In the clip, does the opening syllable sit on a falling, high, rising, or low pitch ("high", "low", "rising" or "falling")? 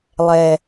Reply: low